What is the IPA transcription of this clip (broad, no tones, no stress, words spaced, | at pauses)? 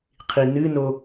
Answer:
qʰinɨno